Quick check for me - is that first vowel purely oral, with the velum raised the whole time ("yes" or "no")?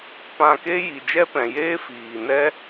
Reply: no